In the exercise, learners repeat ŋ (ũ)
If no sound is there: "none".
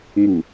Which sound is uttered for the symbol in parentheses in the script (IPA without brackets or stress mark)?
u